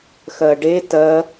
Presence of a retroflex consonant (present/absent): present